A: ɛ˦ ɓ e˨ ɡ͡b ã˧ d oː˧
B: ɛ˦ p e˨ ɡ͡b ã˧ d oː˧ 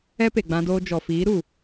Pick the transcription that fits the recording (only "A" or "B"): B